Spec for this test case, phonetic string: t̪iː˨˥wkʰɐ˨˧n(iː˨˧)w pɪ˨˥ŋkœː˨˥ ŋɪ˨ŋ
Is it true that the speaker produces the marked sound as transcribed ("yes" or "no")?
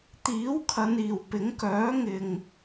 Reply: no